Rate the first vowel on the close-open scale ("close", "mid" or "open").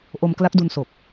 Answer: mid